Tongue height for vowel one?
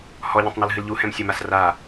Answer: mid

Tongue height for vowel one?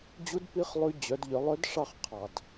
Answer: high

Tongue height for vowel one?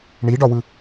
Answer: high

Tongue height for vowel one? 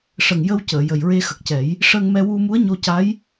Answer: mid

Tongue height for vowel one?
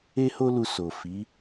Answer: mid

